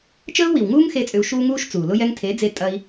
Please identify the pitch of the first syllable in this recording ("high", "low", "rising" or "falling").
high